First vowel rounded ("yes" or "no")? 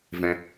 no